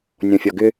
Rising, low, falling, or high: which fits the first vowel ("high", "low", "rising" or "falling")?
low